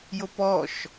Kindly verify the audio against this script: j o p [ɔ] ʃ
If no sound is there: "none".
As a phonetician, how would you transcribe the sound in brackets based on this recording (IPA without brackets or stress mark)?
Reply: ɔ